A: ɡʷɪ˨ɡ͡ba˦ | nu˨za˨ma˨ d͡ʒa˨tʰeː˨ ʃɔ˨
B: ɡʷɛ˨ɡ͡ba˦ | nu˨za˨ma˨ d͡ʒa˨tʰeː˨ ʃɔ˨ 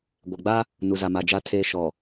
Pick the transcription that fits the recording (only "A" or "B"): A